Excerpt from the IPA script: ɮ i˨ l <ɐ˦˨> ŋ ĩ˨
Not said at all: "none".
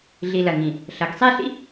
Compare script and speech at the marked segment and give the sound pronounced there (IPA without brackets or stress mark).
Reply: ɐ˨